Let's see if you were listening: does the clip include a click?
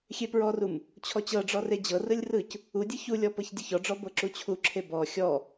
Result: yes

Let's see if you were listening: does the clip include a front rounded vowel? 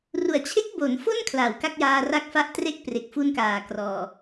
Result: no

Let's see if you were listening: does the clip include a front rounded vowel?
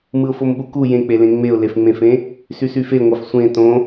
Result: yes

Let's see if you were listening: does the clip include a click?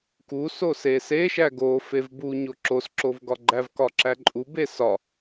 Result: yes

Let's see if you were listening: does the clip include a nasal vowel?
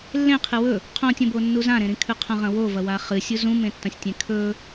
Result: yes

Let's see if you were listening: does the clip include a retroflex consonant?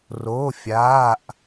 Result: no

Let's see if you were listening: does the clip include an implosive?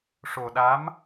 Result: yes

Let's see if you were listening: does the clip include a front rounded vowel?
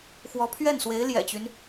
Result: yes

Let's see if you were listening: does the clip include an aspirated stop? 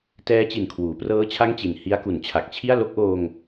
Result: yes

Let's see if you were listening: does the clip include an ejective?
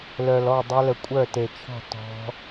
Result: yes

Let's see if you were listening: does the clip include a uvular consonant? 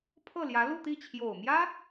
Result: no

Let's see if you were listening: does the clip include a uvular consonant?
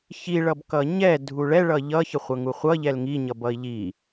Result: yes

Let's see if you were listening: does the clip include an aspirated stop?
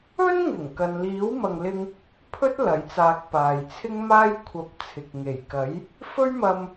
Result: yes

